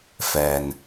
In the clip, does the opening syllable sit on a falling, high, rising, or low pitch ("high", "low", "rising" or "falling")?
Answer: low